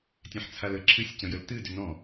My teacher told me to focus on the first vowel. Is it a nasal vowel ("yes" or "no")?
yes